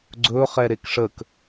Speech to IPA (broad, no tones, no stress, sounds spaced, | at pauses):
ɡ͡ǀ ɵ χ ɛ ɾ e k ʂ ə k